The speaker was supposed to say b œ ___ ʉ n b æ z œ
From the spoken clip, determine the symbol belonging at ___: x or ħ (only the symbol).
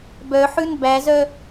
ħ